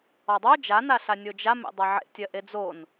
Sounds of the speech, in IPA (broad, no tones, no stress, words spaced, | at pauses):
ɔdˤo d͡ʒanaɬa nʲod͡ʒa mḛdˤaʕḛtʲɜ ʔed͡zon